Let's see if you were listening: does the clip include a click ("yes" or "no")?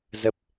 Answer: no